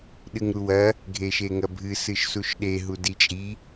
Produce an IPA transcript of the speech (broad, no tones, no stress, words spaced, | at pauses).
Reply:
ɗɨŋɾuwɐ | ɡʱeʃeŋɐbʱɨ sɨʃsuʃɗe ɦudit͡ʃʼi